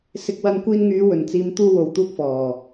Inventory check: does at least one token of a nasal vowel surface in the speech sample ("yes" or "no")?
no